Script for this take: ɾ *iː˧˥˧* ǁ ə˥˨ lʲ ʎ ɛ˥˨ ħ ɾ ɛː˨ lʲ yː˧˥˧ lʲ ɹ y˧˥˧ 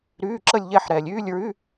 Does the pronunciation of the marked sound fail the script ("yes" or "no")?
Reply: yes